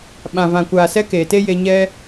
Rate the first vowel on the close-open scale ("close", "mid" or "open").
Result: open